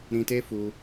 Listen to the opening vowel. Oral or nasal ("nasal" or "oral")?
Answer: nasal